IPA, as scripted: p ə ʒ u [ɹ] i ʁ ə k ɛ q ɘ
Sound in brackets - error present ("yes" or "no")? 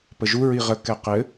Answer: no